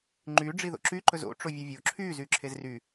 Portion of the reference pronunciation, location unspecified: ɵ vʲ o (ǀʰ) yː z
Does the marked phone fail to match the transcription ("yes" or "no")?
yes